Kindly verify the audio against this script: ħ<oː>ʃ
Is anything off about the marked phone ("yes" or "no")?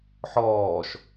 yes